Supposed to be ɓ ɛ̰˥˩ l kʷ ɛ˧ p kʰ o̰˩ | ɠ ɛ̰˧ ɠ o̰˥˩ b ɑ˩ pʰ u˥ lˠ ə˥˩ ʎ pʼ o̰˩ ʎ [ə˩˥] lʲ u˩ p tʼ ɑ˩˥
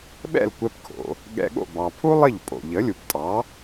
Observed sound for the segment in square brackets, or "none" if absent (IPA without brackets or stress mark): ə˩˥